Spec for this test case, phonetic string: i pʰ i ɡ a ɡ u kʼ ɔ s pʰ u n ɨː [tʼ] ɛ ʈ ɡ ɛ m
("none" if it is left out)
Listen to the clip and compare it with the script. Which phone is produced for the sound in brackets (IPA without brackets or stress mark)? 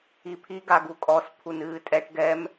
tʼ